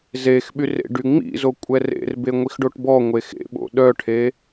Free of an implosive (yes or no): no